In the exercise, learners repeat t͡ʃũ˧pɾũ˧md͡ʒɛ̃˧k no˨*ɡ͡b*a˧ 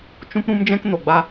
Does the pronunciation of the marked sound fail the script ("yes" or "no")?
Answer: no